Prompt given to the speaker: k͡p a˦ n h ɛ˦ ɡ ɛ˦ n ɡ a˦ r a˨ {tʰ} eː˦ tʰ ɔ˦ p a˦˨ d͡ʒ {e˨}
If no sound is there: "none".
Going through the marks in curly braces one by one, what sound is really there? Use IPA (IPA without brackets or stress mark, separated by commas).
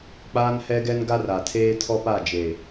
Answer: tʰ, e˨